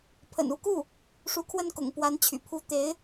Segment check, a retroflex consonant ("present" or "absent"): present